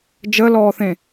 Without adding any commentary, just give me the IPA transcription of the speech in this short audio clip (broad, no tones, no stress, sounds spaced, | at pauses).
d͡ʒ ə l ɔː θ ẽ